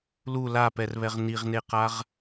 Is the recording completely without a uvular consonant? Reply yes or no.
no